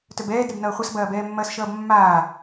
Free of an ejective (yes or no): yes